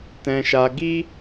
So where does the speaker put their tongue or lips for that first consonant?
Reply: tongue tip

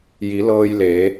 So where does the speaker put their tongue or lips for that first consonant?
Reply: palate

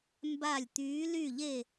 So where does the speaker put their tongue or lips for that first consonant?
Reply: lips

